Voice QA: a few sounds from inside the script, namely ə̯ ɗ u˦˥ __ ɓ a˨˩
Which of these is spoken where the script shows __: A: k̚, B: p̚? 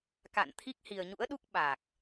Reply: A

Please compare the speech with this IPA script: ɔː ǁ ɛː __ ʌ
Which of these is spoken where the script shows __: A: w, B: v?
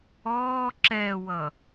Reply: A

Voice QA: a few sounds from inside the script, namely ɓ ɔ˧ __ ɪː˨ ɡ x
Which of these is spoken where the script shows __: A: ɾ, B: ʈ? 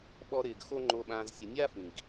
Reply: A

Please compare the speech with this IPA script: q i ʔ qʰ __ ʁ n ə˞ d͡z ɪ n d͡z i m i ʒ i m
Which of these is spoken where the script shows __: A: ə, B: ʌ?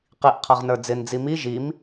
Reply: B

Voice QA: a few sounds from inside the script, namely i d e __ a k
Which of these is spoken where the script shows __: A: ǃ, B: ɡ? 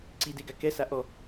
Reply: B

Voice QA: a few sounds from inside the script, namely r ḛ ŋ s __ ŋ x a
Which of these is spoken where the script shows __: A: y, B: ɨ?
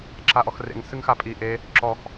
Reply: B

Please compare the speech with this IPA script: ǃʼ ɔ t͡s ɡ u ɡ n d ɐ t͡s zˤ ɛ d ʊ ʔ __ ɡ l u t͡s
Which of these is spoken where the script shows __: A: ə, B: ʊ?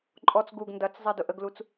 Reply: A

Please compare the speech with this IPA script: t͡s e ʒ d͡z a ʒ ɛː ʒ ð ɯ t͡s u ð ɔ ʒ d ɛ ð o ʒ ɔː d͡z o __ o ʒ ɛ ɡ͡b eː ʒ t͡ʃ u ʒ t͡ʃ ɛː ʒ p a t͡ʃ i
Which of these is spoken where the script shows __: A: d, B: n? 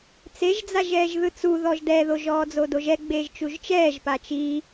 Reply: A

